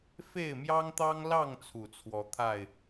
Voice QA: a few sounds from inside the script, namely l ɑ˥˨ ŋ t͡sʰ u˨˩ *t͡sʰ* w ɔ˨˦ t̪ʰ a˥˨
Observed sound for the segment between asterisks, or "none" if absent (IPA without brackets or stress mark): t͡sʰ